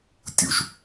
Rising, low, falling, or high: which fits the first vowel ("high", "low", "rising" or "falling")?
low